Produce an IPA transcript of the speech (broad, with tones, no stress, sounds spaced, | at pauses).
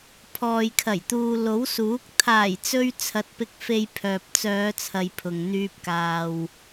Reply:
pʰ ɔː˨ j kʰ ɐ˨˩ j t̪ uː˨ l o˨˥ w s uː˨˥ k̚ t̪ʰ aː˨˩ j t͡s ɵ˧ ɥ t͡sʰ ɐ˧ t̚ p ɪ˧ k̚ f e˧ j pʰ œː˨ p̚ t͡s œː˨˧ t͡sʰ ɐ˨ j pʰ ʊ˨ ŋ n̪ yː˧ p̚ k aː˨ w